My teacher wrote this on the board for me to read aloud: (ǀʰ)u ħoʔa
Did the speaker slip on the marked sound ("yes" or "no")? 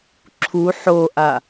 yes